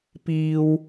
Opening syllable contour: low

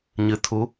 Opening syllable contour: rising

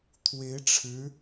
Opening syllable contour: rising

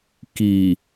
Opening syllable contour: low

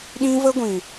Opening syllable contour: high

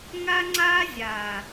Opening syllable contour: high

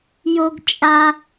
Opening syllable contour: high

